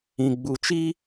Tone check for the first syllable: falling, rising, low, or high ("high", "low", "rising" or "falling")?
low